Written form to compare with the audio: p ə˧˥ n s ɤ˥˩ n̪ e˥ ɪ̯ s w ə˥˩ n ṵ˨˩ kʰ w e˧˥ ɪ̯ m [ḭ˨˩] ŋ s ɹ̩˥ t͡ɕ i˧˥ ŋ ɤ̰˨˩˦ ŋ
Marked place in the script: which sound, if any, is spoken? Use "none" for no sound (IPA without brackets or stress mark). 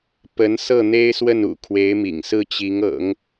ḭ˨˩